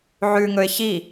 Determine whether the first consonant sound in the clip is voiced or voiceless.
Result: voiced